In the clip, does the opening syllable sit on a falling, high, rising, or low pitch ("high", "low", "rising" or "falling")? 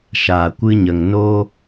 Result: low